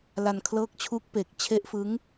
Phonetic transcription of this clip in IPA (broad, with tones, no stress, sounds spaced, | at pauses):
l a˧ n kʰ l ɤː˦˥ k̚ t͡ɕʰ u˦˥ k̚ p e˨˩ k̚ t͡ɕʰ e˦˥ ʔ f ɯ˦˥ ŋ